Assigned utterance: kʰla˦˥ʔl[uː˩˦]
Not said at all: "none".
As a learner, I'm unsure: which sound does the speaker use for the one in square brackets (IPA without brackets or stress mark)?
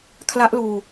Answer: uː˧